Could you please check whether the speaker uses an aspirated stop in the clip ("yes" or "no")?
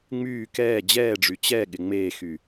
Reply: no